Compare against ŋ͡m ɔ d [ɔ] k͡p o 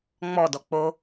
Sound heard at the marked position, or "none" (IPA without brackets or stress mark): ɔ